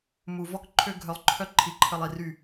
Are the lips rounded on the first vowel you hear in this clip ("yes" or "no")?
yes